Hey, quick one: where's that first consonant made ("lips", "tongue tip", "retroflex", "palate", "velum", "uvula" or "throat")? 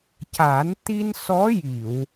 palate